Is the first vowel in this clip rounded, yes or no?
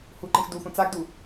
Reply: yes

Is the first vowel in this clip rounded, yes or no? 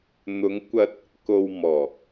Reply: yes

